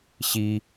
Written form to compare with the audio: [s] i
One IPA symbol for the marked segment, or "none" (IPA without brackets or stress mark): ɕ